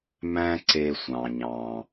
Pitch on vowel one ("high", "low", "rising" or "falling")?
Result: high